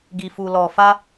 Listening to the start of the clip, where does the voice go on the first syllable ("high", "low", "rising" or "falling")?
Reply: low